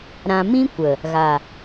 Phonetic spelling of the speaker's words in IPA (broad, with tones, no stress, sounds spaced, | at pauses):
ɾ ã˧ m ĩ˦ kʷ ə˨ | ɣ a˨